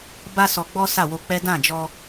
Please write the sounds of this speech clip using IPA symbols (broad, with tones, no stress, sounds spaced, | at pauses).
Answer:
b a˦ s ɔ˧ ɡ͡b ɔ˦ s a˦˨ w o˧ k͡p ɛ˦ d ã˦˨ d͡ʒ ɔ˧